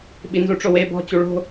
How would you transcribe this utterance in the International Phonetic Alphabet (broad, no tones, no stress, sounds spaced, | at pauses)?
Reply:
ɓ i n z u ʈ͡ʂ o w e b ɔ̤ t͡ɕ u ɭ o̤